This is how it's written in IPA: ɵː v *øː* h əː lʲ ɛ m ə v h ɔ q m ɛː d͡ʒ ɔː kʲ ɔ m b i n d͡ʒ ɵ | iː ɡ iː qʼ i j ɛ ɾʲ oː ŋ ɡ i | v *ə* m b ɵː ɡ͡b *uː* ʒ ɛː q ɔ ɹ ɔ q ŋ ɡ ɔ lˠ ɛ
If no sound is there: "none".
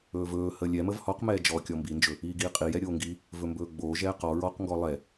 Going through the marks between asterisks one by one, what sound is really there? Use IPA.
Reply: ɵː, ɵ, oː

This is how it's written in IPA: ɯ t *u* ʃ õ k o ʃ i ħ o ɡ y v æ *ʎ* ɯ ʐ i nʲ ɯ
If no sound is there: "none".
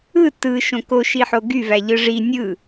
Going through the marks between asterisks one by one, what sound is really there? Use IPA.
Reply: ɯ, ʎ

